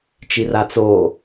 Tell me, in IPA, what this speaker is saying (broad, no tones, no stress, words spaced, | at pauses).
t͡ʃirat͡so